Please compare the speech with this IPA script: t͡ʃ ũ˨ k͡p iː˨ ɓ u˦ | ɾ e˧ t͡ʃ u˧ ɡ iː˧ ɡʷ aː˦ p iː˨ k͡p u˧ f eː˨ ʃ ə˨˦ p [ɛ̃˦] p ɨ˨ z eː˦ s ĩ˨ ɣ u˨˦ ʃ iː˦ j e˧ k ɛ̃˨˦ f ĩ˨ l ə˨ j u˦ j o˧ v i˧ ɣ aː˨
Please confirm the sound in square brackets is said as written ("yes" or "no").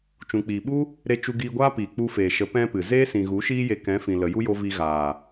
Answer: yes